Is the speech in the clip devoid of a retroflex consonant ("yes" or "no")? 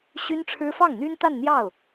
no